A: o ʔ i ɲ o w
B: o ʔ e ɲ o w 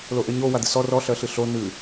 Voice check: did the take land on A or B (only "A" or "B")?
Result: B